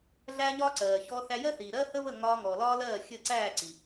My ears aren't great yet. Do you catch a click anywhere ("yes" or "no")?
yes